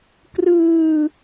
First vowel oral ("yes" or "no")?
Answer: yes